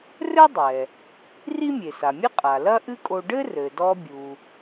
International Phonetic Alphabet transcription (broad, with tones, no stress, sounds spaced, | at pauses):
r ɘ˥ dˤ ɛ˩ | r i˥ mʲ e˩ s a˩ mʲ ɘ˥ qʼ a˩ l ɐ˥ ʔ ɨ˥ kʼ o˧ ɖ ɘ˥ r ɘ˩ d ɔ˧ bʲ u˩